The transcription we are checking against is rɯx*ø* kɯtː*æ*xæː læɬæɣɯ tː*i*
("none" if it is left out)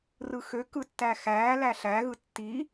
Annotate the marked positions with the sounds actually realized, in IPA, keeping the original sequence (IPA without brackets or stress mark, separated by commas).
ø, æ, i